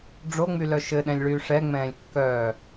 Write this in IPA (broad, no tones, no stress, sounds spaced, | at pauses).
ɖ͡ʐ o ŋ͡m y l œ ʃ ɘ ɗ ɛ̃ lʲ ɭ yː ʂ ɛ ŋ͡m ɛ̃ː lʲ kː œ